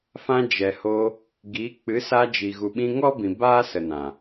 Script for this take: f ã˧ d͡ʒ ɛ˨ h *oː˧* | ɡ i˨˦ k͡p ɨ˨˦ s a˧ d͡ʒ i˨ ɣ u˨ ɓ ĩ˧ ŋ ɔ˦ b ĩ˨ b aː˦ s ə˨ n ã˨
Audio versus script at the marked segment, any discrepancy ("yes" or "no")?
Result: no